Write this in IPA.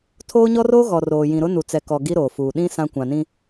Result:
tʰ oː˦ ɲ ɔ˦ r oː˦ ɣ ɔ˨ r oː˨ j ĩ˨ ɾ ʊ˦ n u˨ t͡s ɛ˨ k ɔ˨ ɡ i˦ ɾ oː˨ f uː˨ ɗ ĩ˦ s ã˦ kʷ ã˨ n ĩ˦

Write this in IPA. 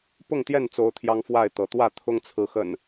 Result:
p ʊ˥˨ ŋ t̪ j ɛ˥˨ n t͡s o˨˦ ʊ̯ t̪ʰ j ɑ˦ ŋ f w a˥˨ ɪ̯ t̪ ɤ˨˦ t̪ w ä˥˨ t̪ʰ ʊ˦ ŋ t͡sʰ ɹ̩˨˦ x ə̰˨˩ n

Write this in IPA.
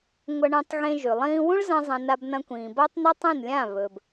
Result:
ŋʷ ɐ˧ ɳ ẽ˧ tˤ ɣ ẽ˧ ʒ ʉ˨ lˠ ĩː˦ w ũ˦ ɭ z ɐ̃˧ zˤ ɐ̃˧ n a˧ b n ɐ̃˧ kʷ ĩː˨ b ɐː˦ tˤ n a˦ tˤ ẽ˦˨ n lʲ ã˦˨ β ɵ˨ b

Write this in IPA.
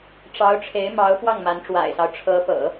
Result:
ʈ͡ʂ ɑ˧˥ ʊ̯ ʈ͡ʂʰ e˧˥ ɪ̯ m ɑ˧˥ ʊ̯ p w ɑ˥˩ ŋ m a˧˥ n ʈ͡ʂ w a̰˨˩ ɪ̯ s ɑ˦ ʊ̯ ʈ͡ʂʰ ɤ˧˥ p ɤ̰˨˩˦

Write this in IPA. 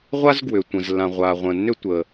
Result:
ʁʷ a˥ z ɡ w ʏ˩ tʷ ə̃˩ z lː ã˩ ʁʷ a˩ ʁʷ ə̃˩ nː ʏ˥ tʷ ə˩

